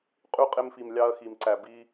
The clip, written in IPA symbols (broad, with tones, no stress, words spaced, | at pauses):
qʼy˧ qʼe˧mfi˨mlʲɑ˧ɐ̯ xi˨mǀæ˨ bi˧